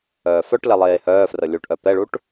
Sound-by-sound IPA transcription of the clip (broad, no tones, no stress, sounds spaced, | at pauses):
œː f œ ʈ l ɛ lˠ eː h œː f r ə lʲ u ʈ ʔ œ p ɛ ɭ u ʈ